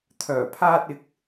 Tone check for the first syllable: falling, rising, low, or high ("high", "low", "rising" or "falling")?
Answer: low